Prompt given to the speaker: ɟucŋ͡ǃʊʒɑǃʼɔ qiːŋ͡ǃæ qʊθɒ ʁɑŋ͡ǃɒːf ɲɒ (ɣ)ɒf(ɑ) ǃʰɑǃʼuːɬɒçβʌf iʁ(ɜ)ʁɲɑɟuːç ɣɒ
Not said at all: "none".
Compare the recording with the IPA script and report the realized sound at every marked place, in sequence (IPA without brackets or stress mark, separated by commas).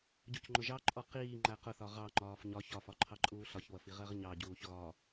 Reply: ç, ɒ, ɜ